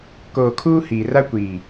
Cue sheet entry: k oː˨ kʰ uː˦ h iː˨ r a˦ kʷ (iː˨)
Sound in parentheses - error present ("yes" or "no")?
no